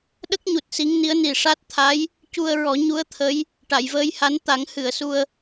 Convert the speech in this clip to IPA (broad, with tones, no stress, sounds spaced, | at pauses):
ɗ ə˦˥ k̚ ɲ u˨˩ t̚ s i˧˥ ŋ n i˧˥ ə̯ n i˨˩ ʂ a˦˥ t̚ t̪ʰ a˧˥ j | c u˧ ə̯ ɹ ɔ˨˩˦ ɲ u˧˥ ə̯ t̪ʰ ə˧˥ j | ʈ a˨˩˨ j v əː˧ j h a˧˥ n t̪ a˨˩˦ ŋ h ɨ˨˩˨ ə̯ s u˧ ə̯